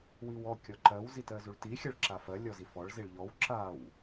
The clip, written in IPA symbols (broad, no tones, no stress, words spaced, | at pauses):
wiwɔ kʲɔǃɜw zitɜzuɭti xʲɜɭǁafɜ lʲɔzifɔɭ ziɭʎɔw ǁaw